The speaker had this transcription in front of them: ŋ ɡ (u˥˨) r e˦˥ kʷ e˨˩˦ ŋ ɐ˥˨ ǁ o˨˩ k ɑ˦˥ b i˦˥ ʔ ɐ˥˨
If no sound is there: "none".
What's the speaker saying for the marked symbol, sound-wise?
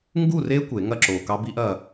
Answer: u˥˨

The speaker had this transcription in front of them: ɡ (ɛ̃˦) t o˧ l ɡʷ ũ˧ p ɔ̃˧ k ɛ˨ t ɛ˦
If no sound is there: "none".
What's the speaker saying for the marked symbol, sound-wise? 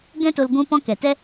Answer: ɛ̃˦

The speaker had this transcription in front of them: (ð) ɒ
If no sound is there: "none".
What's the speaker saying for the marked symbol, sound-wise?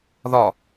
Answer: ð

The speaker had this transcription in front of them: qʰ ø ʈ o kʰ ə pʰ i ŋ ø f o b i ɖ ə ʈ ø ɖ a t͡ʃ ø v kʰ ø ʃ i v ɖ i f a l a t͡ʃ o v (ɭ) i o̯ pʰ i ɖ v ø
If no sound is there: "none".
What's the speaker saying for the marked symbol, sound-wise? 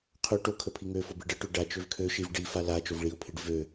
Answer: ɭ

